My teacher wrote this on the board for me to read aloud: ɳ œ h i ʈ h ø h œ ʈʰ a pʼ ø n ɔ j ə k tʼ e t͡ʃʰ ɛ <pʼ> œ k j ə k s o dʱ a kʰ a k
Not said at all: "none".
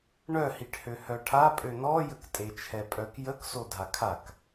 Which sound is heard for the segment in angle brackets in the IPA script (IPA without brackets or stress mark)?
pʼ